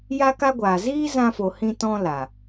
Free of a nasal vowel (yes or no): no